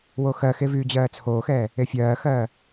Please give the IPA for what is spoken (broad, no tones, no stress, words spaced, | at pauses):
woxɜxe vyːd͡ʑɜːt͡sʰoːxɛː | efʲɜːxɜː